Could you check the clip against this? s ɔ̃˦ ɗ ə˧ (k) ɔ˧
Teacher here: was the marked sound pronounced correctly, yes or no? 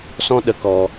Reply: yes